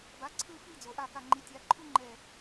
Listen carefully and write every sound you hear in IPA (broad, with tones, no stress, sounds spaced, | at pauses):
b a˩˥ ǀʰ ɯ˥˨ f i˥˨ d͡z o˩ ʔ a˧˩ k a˧˩ ŋ͡ǃ i˩˥ tʲ a˩˥ ǃʰ u˥ ŋ͡ǃ ɛ˧˩